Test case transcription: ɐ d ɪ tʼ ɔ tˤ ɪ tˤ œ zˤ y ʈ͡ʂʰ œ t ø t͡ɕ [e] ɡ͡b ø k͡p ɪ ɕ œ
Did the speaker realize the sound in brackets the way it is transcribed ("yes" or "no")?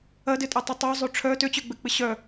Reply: no